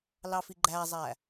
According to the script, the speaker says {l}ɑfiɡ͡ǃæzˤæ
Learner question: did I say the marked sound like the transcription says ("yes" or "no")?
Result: yes